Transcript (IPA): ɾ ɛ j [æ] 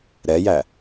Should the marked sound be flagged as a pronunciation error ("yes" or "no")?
no